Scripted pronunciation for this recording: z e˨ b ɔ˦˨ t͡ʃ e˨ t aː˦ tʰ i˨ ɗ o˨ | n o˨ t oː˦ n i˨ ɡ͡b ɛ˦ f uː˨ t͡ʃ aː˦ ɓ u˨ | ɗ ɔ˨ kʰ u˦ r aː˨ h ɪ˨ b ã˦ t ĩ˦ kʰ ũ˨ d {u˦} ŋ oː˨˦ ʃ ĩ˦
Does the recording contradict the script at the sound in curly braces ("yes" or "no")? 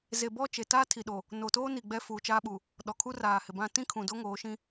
yes